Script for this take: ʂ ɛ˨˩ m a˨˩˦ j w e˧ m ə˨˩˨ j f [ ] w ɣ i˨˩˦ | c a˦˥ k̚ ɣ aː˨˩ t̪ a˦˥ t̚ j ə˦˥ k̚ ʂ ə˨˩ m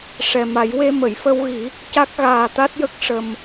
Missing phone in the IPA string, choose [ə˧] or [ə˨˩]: ə˧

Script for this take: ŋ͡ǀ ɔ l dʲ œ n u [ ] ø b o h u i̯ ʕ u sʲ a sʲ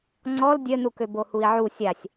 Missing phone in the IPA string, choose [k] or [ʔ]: k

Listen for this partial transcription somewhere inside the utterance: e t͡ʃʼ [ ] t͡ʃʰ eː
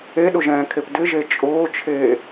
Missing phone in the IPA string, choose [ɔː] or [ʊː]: ʊː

